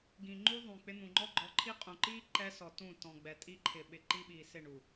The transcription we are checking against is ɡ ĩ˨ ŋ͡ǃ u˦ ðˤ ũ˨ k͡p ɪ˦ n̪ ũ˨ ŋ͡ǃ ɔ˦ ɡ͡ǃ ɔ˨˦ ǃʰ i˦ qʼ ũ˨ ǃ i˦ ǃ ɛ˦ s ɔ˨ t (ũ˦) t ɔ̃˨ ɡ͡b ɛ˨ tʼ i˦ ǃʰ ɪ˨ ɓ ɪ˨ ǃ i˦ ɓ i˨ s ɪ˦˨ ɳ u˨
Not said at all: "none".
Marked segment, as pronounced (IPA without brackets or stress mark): ũ˦˨